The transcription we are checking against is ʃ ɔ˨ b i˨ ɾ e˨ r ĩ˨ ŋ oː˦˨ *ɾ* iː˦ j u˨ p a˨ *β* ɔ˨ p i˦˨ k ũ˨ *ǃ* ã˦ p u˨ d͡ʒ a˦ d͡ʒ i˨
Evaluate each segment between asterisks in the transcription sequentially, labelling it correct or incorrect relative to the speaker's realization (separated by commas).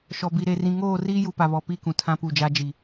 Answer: incorrect, correct, incorrect